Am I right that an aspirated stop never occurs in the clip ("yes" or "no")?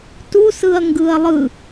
yes